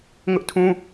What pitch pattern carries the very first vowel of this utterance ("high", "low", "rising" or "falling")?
high